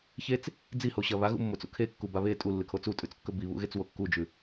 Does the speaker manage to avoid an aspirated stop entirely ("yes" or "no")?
no